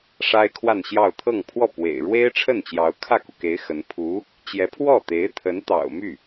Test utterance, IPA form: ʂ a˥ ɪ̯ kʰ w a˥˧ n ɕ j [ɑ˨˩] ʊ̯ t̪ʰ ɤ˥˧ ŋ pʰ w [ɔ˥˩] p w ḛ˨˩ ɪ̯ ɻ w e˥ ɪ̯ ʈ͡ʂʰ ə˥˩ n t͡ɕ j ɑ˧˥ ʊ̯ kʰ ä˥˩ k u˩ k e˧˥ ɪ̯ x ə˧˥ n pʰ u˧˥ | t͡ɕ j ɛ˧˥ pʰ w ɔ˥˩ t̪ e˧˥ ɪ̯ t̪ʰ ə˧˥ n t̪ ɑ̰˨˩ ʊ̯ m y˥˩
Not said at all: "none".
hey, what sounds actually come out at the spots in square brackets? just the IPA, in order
ɑ˥˧, ɔ˥˩

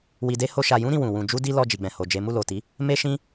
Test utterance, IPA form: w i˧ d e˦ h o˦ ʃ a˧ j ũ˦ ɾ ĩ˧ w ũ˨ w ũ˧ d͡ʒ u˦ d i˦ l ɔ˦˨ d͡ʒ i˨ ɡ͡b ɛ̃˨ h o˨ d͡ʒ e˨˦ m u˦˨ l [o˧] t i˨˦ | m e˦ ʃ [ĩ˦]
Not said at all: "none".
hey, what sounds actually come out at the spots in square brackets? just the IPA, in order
o˨, ĩ˦

